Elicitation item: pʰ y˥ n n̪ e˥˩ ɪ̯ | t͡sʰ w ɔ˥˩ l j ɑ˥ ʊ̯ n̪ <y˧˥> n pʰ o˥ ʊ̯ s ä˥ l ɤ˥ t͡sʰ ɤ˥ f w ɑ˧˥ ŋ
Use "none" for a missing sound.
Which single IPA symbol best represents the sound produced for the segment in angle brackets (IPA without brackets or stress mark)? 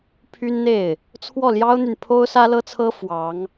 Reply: y˨